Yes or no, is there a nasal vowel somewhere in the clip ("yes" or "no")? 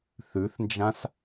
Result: yes